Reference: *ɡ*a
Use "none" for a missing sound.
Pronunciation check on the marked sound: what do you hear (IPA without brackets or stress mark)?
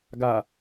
ɡ